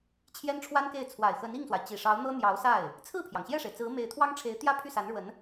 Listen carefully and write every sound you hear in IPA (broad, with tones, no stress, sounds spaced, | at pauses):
t͡ɕʰ j ɛ˥ n ʈ͡ʂʰ w a˥ n k e˥˩ ɪ̯ t͡sʰ w a˨˩ ɪ̯ x ə˧˥ n i˥˩ ŋ s w a˩ ɪ̯ t͡ɕ i˨˩ ʂ ɑ˧˥ ʊ̯ n̪ ɤ˥ n̪ j ɑ˧˥ ʊ̯ s a˥˩ ɪ̯ | t͡sʰ ɹ̩˥˩ pʰ j ɑ˩ ŋ ɕ j ɛ˥˩ ʂ e˩ ɪ̯ t͡s ɹ̩˧˥ m e˧˥ ɪ̯ t̪ʰ w ɑ˥ ŋ ʈ͡ʂʰ e˧˥ ɪ̯ t̪ j ä˥ pʰ y˥˩ s a˧˥ n ɻ w ə˧˥ n